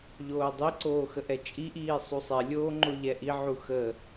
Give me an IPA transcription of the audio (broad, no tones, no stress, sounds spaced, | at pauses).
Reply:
ʎ oː dˤ i ǀ oː x ə ʔ ɛ t͡ʃʼ i ʔ iː sˤ u sˤ ɛ lʲ oː ŋ͡ǃ o ʎ ɛ ʔ i ʕ u x ə